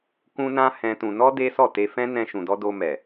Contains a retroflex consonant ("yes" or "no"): no